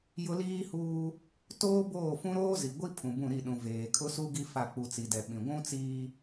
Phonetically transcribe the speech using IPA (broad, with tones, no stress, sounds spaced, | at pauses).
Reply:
j ʊ˦ l iː˦ h uː˦ | t oː˦ b oː˦˨ f ũ˦ ɾ oː˦ z i˨ ɡʷ i˦ pʰ ũ˨ b ũ˦˨ ɾ i˦˨ ɗ ũ˨ v eː˨ kʰ ʊ˦ s u˦ ɡ i˦ f a˦˨ k͡p u˨ t͡s i˨ d ɛ˨ ɓ ĩ˨ ɡʷ ũ˦ t͡s iː˦